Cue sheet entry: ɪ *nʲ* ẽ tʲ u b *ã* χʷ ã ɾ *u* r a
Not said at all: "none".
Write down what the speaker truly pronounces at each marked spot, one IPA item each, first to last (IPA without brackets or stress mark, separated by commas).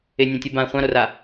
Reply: nʲ, ã, o